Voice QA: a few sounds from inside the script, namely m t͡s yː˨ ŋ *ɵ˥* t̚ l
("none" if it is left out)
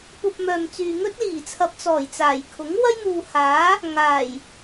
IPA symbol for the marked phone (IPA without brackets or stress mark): ɵ˥